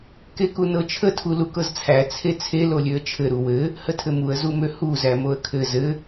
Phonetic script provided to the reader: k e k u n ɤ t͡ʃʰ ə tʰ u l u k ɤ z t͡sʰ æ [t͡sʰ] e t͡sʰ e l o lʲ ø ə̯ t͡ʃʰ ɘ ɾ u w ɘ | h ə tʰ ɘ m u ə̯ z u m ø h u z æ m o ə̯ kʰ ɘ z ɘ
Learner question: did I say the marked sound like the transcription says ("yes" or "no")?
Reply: yes